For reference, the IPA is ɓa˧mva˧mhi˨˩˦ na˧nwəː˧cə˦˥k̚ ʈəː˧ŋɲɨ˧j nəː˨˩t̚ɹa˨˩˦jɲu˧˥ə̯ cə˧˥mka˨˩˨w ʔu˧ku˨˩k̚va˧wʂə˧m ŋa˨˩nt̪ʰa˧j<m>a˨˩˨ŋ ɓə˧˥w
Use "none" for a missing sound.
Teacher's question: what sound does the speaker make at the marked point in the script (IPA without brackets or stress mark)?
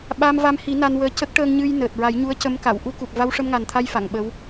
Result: f